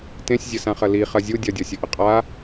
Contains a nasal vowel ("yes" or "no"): yes